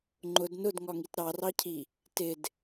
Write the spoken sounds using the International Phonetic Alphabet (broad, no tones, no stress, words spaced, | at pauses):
ŋ͡ǃʊd nʊdŋɒŋit ɾɑrɑcʰi | tɪd